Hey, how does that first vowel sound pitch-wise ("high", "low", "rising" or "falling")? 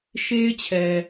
high